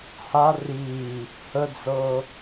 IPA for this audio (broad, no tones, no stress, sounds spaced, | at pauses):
h a r iː | h ə d͡z ɤː